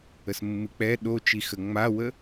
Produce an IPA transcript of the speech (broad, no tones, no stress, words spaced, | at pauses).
əsmːɨk͡pɛ ɗot͡ʃixə ŋ͡mawə